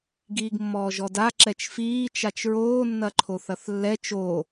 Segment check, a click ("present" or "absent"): present